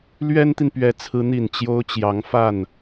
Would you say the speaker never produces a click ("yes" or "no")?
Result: yes